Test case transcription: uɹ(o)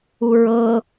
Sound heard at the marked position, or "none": ɤ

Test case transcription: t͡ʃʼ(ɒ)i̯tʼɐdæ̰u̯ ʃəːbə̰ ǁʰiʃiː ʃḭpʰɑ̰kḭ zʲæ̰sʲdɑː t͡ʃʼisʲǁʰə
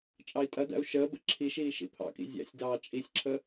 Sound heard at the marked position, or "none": ɑ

